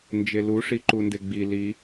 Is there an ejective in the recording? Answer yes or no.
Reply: no